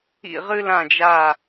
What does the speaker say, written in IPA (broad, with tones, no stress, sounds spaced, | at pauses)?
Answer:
ḭ˦˨ ʁ ɨ˦ l ã˦˨ d͡ʒ a˦˨